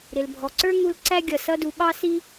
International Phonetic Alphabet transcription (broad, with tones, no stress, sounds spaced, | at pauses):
ɾ ɪ˩ l bʱ ɔ˩ ǀ ə˞˥ ŋ u˦ l ǀ æ˥ ɡʲ ʌ˩ s ʌ˦ d u˨ ɓ ɑ˥ s i˥